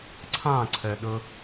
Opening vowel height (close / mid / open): open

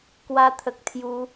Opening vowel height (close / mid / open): open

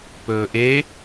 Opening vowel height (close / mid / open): mid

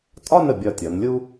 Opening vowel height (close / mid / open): open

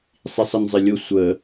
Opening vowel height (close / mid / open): close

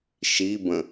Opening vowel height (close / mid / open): close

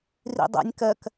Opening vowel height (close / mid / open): close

